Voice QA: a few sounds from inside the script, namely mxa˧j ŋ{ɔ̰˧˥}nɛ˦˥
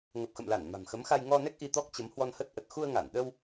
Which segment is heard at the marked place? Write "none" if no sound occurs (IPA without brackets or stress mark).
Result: ɔ˧